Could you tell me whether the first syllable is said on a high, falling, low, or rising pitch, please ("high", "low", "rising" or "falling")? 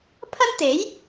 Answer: high